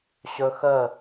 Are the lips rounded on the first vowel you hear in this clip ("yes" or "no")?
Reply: yes